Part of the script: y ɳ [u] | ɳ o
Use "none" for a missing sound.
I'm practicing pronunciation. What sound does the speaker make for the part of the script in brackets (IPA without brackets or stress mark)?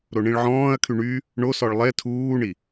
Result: y